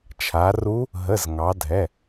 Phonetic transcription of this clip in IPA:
t͡ʃʰa˩˧ru˧˥ | ɦə˩˧˩z ŋɑ˩˧dʱɛ˩˧˩

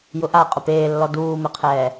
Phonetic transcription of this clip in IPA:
jʊʔa qʼʊpeːlːɔ duːmɪqʰɛː

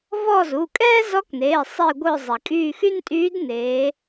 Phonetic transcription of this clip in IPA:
vɔ˦˨zu˩˧˩ kʼɛː˥zɔ˧˥kneː˩˧˩ sˤi˦˨ɡʷœ˦˨zˤɛ˩kʼyː˦˨ xy˥ntʼyː˧˥d neː˩˧

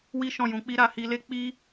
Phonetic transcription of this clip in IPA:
wi˦ʃɔ̃˦˨jũ˧k͡pi˦ ɾa˧hi˧le˦ k͡pi˦

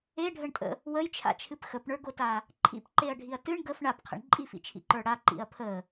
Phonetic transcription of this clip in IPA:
eɖʱəɳtʼə̰ | wəjt͡ʃʰa̰t͡ʃʰɨp xəpɳə˞ɡota | ǃʰḭpǃeɐ̯ɖʱiɐ̯ tɨɳ ɡəf ɳapqʰə̰ɳ ǃʼifḭt͡ʃʰḭǃə˞ ɽaǃḭɐ̯ pʰə

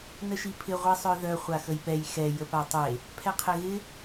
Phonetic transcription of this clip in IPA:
nəʃipʰɪ ʁʷisˤœðœ χʷaxəjpɛj xɛ jəpatˤe | pʰɛqʰeɣɪ

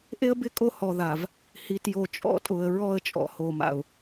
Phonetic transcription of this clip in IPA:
ʔe˦ə̯bɪ˦kʼo˦˨ hɔ˨ ða˨v | hi˨tjo˨ t͡ʃʼɔ̰˦tʼʊ˨ə̯ ɹɔ˦˨ə̯t͡ʃʼɔ̰˨ho˨ma̰˨ʊ̯

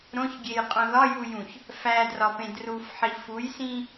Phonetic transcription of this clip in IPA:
ɾõçɡʲejqʼõ ðɒjujũç | fædrɒpẽ drufħi fujsĩ

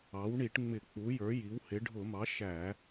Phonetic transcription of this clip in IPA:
ɑ˩˥w ɳi˧˩˧ʈŋ͡mɪ˧˩˧ k͡pu˩˥jə˞˩˥ji˩˥whɪ˩˥ ɖʱʊ˧˩˧mɑ˩˥ ʃæ˧˩˧

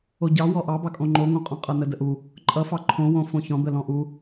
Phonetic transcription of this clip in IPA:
oɟɑ wɔʔɑbɑkʼõ ŋ͡ǃoŋõqʼɔ̃ qʼʌnədəʔu | ǃʼʌfɑ ǃʰõwõ fõçɔ̃d̪ə lɔ̃ʔu

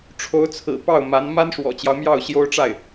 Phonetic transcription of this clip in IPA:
ʈ͡ʂʰo˧˥ʊ̯t͡sʰɹ̩˨˩ pɑ˥˩ʊ̯ma˧˥n ma˥nʂwɔ̰˨˩t͡ɕjɑ˦ʊ̯mjɑ˥˩ʊ̯ ɕjo˥ʊ̯ʈ͡ʂa˥˩ɪ̯

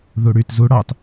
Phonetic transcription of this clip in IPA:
ðuɽyt zu ɽɑt

